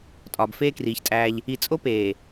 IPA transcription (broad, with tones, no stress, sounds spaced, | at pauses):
tʼ ɒː˨ b f eː˦ k r iː˨ ç tʼ æː˦ ʎ | i˨ t͡sʼ o˦ p eː˨